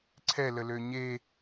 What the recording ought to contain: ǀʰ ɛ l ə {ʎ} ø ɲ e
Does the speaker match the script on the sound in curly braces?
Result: no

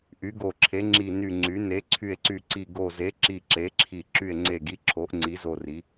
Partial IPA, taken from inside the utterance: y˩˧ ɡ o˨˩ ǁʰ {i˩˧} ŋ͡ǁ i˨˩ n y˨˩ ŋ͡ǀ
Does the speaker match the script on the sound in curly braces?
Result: no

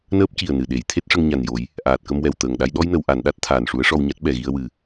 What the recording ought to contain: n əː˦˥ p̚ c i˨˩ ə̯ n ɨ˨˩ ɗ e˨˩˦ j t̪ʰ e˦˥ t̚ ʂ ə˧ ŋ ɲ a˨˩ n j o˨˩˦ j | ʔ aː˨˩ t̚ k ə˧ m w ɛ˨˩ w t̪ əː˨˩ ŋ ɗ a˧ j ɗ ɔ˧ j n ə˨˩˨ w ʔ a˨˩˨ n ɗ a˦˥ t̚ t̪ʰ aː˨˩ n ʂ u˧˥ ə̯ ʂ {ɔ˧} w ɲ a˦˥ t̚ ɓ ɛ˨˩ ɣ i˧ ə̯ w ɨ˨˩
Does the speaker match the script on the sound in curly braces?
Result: yes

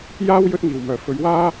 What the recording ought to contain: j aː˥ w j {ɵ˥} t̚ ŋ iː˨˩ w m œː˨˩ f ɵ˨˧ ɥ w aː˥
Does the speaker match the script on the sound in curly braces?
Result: yes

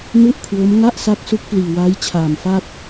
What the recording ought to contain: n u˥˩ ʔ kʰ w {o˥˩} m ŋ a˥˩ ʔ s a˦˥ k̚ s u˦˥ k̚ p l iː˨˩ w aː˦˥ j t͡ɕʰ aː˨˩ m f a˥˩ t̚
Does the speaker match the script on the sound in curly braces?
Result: no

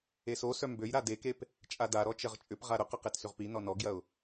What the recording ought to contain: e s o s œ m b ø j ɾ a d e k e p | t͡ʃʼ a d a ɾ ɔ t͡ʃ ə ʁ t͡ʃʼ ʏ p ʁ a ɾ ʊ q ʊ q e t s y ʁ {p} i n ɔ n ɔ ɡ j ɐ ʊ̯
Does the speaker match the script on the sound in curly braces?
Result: yes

